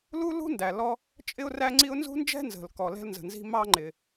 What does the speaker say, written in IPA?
l u˥ l ṳ˥ n d æ˩ l ɔ˥ | t͡ʃʼ ɪ˥ ʊ̯ r æ˥ ŋ͡ǀ i˥ ʊ̯ n z ṳ˥ n d͡ʒ ɛ̤˥ n z ə̤˩ l k ɔ˩ l ɛ̤˥ l n z ə̤˩ n z i̤˥ m ɑ˥ ŋ͡ǃ ɪ˩

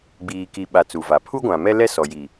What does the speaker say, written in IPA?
ɡ͡b iː˨ k i˨ ɓ a˨ t͡s u˨ v a˨ pʰ u˦ ɡʷ ã˨ m ɛ˦ l ɛ˦ s ɔ˨ j i˨

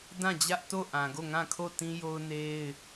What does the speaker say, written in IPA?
d ã˦˨ d͡ʑ ä˦ ʔ t o˦˨ ʔ ã˨ ɡ o˦˨ ŋ ã˦˨ kʰ o˦˨ t ĩ˦ j o˦ ʊ̯ n e˦ ɪ̯

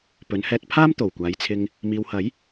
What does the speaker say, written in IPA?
p ɵ˨˧ n h ɛː˧ t̚ pʰ aː˥ m t̪ o˨˩ w kʷ aː˨˧ j t͡sʰ ɪ˧ ŋ | m iː˨ w h ɐ˨˥ j

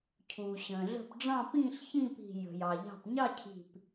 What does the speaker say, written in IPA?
cʰ uː˩ ɕ ə̃ː˩ ɮ ə̤˧˩ p ɖ͡ʐ ɑ̃˥˧ p ĩː˥˧ ɬ ç ĩ˥˧ p i̤˧˩ j ə̤˩ j ɑ˩ ʎ ɑ̤˧˩ p ɲ ɑ˥˧ cʰ i̤˧˩ p

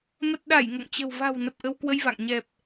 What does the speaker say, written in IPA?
m ə˨˩ t̚ ɗ a˧˩ j ŋ o̰˧˨ ŋ t͡ɕ ə̤˨˩ w v a̤˨˩ w n ə˨˩ p̚ ʔ ə˧ w k w ə˧ j v a̰˧˨ ŋ ɲ ɛ˨˩ p̚

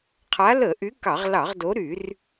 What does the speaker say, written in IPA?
qʰ a˨˦ l ə˧˩˧ ʔ y˨˦ k ɑ˧˩˧ ʁ l ɑ˧˩˧ ʁ d o˨˦ ɾ y˧˩˧ r

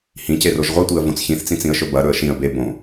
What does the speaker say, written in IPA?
h ĩ c e r o ʒ ʁʷ i tʷ i ə̯ v õ t͡s ç ĩ θ t͡s ĩ t͡s ĩ ə̯ ʃ ɵ b ɐ ɾ ɵ ə̯ ʃ ĩ ə̯ b e b õ

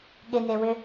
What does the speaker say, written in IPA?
ɠ ɪ n e w ʏ

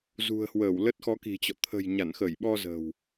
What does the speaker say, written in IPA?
z ṳ˨˩ ə̯ h w əː˧˩ w l ə˦˥ t̚ x ɔ˨˦ k i̤˨˩ t͡ɕ ɔ̰˧˨ t̪ʰ ə̤˨˩ j ɲ a˧˩ n x ə˧˩ j ɓ ɔ˧ z ə̤˨˩ w

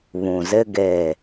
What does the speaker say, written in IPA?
β ũ˨ z ɪ˦ ɡ eː˦˨

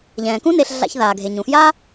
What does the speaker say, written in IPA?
ʎ ɛ̃ː˩ k ũ˥ n e˨ ɬ ɮ a̰˨ ç ð aː˩ ɡʱ e˩ ɲ ũ˩ f j a˥

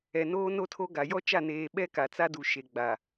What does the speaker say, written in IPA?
ɛ˨ n oː˦ n o˦ tʰ o˦ ɡ a˨ j ɔ˦ t͡ʃ a˦˨ n eː˨ ɓ ɛ˦ k a˨ t͡s a˦ d u˨ ʃ e˨ ɡ͡b a˨

